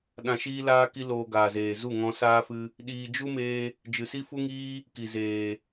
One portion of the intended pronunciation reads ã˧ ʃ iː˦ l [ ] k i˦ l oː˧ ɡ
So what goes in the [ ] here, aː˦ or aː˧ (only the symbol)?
aː˦